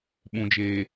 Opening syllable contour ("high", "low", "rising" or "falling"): low